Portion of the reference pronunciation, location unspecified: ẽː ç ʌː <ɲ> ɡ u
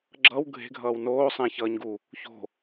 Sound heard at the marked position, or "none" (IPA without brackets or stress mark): ɲ